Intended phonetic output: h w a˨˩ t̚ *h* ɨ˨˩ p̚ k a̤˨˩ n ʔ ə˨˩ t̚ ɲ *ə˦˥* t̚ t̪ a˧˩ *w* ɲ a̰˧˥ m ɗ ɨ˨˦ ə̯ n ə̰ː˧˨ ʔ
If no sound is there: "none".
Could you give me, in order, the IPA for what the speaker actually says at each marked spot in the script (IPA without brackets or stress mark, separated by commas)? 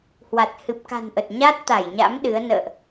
h, a˦˥, j